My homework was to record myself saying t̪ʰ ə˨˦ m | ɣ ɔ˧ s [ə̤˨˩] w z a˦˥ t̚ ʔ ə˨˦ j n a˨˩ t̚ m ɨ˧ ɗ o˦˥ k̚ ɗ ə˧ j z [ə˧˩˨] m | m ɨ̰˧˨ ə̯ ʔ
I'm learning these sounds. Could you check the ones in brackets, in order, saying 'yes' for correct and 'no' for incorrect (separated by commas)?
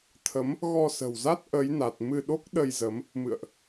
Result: yes, no